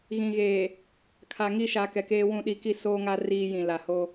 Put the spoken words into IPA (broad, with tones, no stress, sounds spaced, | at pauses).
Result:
ɣ ĩ˨ ɣ eː˨ | kʰ a˨ ŋ i˦˨ ʃ a˨ k ɛ˨ k eː˦ w ũ˦˨ ɗ i˦ k i˦ s oː˦ ŋ a˦ r iː˦ j ĩ˨ l a˨ h o˦